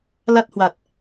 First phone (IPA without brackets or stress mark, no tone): l